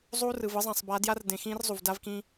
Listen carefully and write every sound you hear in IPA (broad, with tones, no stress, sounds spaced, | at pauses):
zˤ uː˦ r ɯ˨ v ɯ˦ zˤ ã˨ sˤ b a˨˦ d j a˦ r d ẽ˨ x ĩː˦ r zˤ u˨ v d a˦ v k ĩ˦